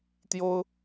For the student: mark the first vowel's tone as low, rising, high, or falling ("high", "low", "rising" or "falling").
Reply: high